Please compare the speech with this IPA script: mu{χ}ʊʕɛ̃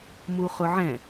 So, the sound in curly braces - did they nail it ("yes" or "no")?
yes